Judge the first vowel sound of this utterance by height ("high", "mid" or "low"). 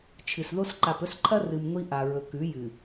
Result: high